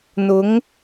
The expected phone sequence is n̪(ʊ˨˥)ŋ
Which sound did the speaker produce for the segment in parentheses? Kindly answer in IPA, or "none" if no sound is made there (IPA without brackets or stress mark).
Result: ʊ˨˥